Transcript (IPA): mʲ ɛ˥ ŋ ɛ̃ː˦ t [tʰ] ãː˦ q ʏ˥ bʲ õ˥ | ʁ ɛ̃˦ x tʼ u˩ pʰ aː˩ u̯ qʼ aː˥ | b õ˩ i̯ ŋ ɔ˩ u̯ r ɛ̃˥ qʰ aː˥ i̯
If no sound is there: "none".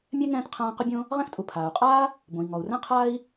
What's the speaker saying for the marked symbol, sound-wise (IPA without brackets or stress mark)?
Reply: qʰ